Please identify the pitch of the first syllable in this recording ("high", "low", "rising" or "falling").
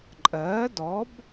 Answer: rising